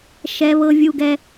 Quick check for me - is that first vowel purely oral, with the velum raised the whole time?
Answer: yes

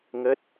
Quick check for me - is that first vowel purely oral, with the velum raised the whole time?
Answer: yes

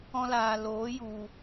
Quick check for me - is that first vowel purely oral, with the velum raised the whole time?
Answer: no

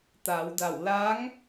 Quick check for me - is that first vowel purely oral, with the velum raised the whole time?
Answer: yes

